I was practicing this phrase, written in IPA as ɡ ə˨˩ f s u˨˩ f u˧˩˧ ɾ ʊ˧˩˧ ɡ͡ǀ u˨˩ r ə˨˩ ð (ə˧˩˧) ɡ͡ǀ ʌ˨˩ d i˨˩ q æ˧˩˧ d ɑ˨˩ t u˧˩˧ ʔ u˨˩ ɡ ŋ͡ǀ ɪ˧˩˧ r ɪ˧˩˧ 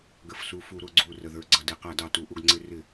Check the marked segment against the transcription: incorrect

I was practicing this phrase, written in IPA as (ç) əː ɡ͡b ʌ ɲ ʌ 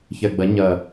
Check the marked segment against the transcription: correct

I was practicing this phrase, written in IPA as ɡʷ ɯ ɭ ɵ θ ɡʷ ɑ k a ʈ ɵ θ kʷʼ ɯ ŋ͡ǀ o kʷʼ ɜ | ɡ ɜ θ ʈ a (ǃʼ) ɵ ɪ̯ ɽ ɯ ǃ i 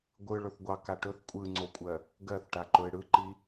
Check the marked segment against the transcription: incorrect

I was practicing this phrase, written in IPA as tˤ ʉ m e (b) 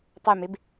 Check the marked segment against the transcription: correct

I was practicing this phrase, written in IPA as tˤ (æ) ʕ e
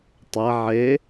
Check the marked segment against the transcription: correct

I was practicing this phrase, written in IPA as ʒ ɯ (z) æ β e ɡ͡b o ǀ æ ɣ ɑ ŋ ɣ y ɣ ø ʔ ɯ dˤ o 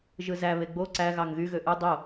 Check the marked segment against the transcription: correct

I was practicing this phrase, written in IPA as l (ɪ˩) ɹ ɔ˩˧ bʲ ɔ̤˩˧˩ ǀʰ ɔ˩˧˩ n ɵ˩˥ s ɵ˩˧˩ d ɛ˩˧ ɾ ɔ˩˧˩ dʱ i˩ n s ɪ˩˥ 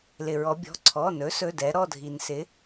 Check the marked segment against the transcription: correct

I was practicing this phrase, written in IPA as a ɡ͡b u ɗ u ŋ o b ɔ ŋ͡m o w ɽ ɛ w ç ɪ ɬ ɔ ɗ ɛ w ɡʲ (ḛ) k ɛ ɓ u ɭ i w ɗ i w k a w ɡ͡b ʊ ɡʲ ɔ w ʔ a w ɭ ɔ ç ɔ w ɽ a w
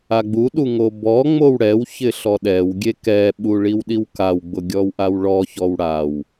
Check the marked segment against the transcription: incorrect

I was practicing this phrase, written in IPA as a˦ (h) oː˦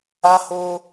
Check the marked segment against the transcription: correct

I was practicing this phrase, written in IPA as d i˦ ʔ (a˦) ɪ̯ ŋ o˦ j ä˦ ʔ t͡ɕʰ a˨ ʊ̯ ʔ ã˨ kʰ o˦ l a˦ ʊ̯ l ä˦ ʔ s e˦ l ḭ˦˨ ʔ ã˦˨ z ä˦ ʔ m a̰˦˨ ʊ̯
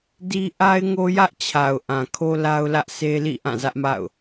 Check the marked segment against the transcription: correct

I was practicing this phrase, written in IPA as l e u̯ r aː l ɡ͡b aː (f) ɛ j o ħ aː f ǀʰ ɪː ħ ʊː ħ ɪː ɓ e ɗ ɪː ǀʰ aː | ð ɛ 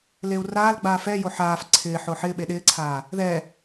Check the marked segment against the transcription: correct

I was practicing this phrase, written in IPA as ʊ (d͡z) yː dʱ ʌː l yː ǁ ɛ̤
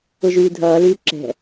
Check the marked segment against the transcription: incorrect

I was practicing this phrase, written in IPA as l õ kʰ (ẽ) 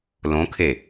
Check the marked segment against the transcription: incorrect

